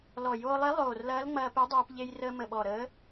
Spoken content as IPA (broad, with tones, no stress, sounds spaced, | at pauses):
l ɔ˨˩ j oː˧ lˠ e˧˥ lˠ oː˨˩ r l ɐː˧˥ l ŋ͡m ɐː˧ p e˧˥ dˤ ɛː˧ p ʎ e˧ j r əː˧ m ə˨˩ ɓ ɔ˨˩ ɾ əː˧˥